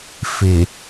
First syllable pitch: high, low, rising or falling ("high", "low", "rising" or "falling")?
low